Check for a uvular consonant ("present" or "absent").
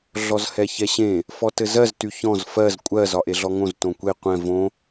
present